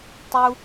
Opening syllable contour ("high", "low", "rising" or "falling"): high